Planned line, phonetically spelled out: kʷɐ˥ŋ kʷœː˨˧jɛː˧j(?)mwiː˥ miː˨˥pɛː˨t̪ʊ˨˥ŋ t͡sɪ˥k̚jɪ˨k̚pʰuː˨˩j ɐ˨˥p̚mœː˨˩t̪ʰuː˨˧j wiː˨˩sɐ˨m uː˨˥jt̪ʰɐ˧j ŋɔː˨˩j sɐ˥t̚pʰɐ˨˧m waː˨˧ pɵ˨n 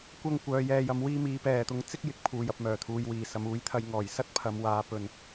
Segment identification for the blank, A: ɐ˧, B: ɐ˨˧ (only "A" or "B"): A